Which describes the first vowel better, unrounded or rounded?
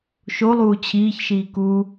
rounded